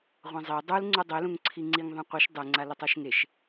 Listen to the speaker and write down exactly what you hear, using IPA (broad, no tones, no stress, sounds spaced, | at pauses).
ʁʷ ã zˤ e dˤ u l ŋ͡ǀ u dˤ e l ũ ŋ ǀʰ i ŋ͡ǀ i ŋ ðˤ ã qʷ ɯ ʃ dˤ ɯ ŋ͡ǀ a l ɯ tˤ o ʃ ŋ e ʃ